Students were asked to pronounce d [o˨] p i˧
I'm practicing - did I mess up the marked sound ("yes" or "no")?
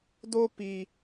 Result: yes